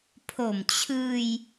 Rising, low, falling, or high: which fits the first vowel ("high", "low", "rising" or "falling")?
low